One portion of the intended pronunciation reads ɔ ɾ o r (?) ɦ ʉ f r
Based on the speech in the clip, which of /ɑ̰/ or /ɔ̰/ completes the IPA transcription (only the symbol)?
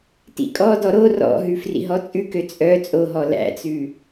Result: ɔ̰